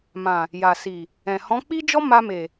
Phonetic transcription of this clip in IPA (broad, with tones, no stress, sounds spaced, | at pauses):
m ã˨ | j a˨ s i˨ | ɛ̃˨ h ɔ̃˨˦ k͡p i˦ d͡ʒ ɔ˦ m a˧ m e˨